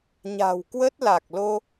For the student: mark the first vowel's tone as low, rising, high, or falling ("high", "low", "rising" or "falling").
low